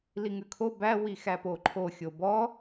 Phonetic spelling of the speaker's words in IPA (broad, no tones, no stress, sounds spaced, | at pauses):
l i ŋ ʉ kʰ o b æ w i x æ p o ǃʰ o xʲ o b ɔ